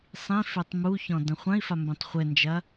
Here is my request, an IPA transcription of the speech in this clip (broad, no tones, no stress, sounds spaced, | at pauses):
sˤ ĩ f e tˤ m u ç ɔ̃ d ɐ̃ χʷ ɐ̃ i̯ f a m b ẽ tˤ χʷ ɘ n d͡ʒ ɐ